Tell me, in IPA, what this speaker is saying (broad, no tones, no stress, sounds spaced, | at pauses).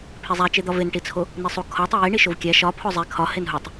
pʰ e zˤ æ t͡ʃ e d̪ ɒ v e n ʈ i t͡sʰ o | n i sˤ u kʰ ɒ tˤ e j i ɳ i ʃ o v kʲ æ ʃ ɒ pʰ o zˤ e kʰ ɒ h e n ɦ u tˤ